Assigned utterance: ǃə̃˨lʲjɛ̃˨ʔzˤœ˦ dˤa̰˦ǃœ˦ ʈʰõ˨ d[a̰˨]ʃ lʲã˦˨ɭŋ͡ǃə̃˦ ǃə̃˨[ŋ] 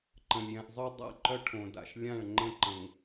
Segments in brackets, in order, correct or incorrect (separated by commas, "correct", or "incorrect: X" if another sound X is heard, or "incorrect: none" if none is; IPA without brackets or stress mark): correct, correct